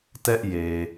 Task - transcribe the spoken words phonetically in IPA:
tɛ˦ʔje˨

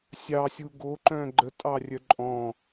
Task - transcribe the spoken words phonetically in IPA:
sʲɑsʲu ɡoǃœ̃ ɡ͡ǃətʼɑrʲœ ǃʼɔ̃

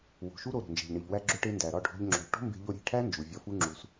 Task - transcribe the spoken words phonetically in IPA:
wo̤˨ʃu˦ ɾo˧ɾo̤˨nd͡ʒe̤˨ʎɳi˨ʎ wæ˧ɡ͡ǁo˧ʈe˧ ndæ˨ɾɒ˦˨ɖʱo̤˧ʎ ŋ͡ǁo̤˨ʎʈo̤˦mbe̤˧ʎo˧ ɾʲe̤˦˨ʈʰæ˦ nd͡ʒu˨vʲɒ˧fu˦ ŋ͡ǁu˧s

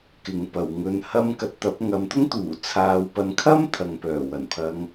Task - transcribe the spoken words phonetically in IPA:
kɪ˨˧ŋpɐ˨w ŋɵ˨nhɐ˧m kɐ˨˥t̚t̪ɐ˨˥p̚ ŋɐ˨˧mt̪ʊ˥ŋt̪uː˨˩ t͡sʰaː˨wpɐ˨˧nkʰɐ˥m t̪ʰɐ˨ŋpœː˨˩wɐ˨˩npʰɐ˨˧ŋ

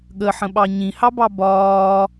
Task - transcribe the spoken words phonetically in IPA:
ɠəħə̃ɓɑ ɲĩhɑbɑ bɒː

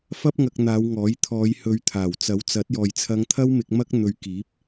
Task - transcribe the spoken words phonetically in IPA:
fɐ˥p̚ŋɐ˧k̚n̪aː˨˧w ŋɔː˨˥j t̪ʰɔː˨˧jhɵ˨˧ɥ t̪ʰaː˨˩wt͡sɐ˨˥wt͡sɐ˨˥t̚jɔː˨j t͡sʰɐ˧ŋt̪ʰɐ˥wmɪ˧k̚ mɐ˥k̚n̪ɵ˧ɥ kiː˨˥p̚

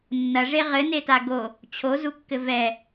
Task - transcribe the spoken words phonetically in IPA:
nːɐʐe ʁɘneta ɡo | t͡ɕʰozukːɘ vɛ

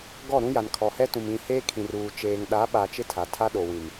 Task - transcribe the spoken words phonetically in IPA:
ɡɔ˦˨ɾũ˦ja˨n kʰɔ˨hɛ˦tũ˨m ĩ˨ heː˦kʰĩ˨ruː˨ t͡ʃeː˨ŋɗa˨˦ ɓa˨ t͡ʃɪ˦tʰa˨ tʰa˦ɗo˨wĩ˨m

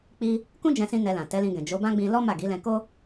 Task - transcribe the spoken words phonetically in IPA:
k͡pi˧ | kũ˦d͡ʒɛ̃˧sĩ˧ nɛ˧lã˨ tɛ˨˦lĩ˧ɡɛ̃˨ d͡ʒo˨˦bã˦ɡ͡bĩ˧ lɔ˦ ma˦˨ɡi˨˦lɛ̃˧ ko˦

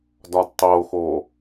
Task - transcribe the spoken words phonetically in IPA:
dɒdtˤoxo

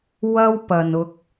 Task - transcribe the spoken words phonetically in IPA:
wɐ˥wpɐ˨nʊ˧k̚

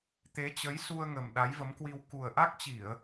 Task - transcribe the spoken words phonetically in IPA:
t̪e˨˦ t͡ɕə˨˦jsu˧ə̯ŋə˨˩m ɗa˨˦jvə˨˦mkwi˧w ku˨˩ə̯ʔa˦˥k̚t͡ɕi˧˩˨ə̯

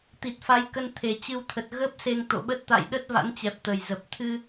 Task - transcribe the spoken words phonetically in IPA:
t̪i˨˩t̚fa˨˦j kə˧nt̪ʰe˨˩t͡ɕɨ˧wt̪ʰə˨˩t̚ ɣə˦˥p̚ se˧ŋt̪o̰˧˨ɓə˦˥t̚ t̪a̰˧˨jɗə˦˥t̚ va̰˧˥nt͡ɕɛ˨˩p̚ t̪ə˨˩jzə˨˩p̚ t̪ʰɨ˧

